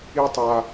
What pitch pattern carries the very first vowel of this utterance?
high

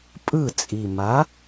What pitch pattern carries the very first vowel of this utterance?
falling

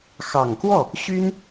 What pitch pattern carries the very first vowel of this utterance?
low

